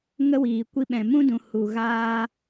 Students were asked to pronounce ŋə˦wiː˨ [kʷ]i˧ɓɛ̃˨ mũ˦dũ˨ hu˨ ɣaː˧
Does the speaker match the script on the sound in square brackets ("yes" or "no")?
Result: yes